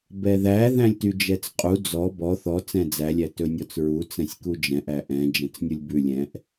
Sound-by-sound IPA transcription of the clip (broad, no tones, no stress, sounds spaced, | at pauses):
b ɛ ð æ ð æ̃ lʲ t y d͡ʒ ɛ t͡s qʼ u d͡z ɔ b ɔ θ ɔ t͡s ɛ̃ d͡z æ lʲ æ t ɵ nʲ ɔ t͡s ɹ u t͡s ɛ̃ sʲ k u d͡ʒ ɛ̃ ʔ æ ʔ ɛ̃ d͡ʒ ɛ̃ t͡s nʲ u lʲ b ʉ lʲ ɛ̃ ʔ